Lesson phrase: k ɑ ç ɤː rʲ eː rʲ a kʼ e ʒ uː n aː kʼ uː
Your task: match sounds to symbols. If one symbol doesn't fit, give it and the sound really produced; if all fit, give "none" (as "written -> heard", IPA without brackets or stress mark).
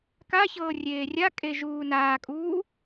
ɑ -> a